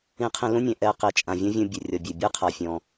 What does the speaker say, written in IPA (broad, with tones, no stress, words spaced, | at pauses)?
ĩ˧qʰĩ˧lũ˥nʲɛ̃˩ ʔɛ˧ qi˩t͡ʃʼã˩ vʲɔ̃˥vʲũ˧ bʲø˩rʲɔ˩ bʲø˩ bʲɛ˥qʰa˩fʲɔ̃˩